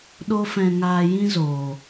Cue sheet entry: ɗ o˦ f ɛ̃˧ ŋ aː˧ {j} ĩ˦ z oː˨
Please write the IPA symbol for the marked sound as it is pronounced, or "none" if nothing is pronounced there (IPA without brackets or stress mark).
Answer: j